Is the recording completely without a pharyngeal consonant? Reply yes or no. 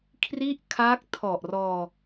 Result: yes